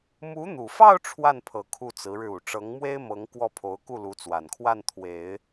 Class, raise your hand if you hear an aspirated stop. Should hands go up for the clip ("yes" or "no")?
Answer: yes